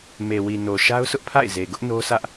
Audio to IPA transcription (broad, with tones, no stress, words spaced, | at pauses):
me˨wi˨no˨ ʃa˦ʊ̯sʊ˦ʔpʰa̰˦˨ɪ̯ ze˨ɡʊ˦ʔ no˦sä˦ʔ